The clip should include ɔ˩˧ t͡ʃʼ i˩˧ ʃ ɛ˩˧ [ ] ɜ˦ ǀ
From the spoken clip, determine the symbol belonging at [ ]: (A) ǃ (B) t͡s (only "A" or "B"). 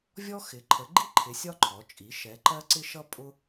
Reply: A